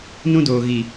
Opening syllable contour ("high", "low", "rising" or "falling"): high